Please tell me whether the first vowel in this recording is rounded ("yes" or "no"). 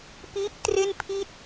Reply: no